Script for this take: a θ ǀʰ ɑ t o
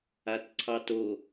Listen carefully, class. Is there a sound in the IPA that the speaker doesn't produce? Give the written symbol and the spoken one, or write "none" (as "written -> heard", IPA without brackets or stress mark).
θ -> t